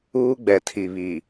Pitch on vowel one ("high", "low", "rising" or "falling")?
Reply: high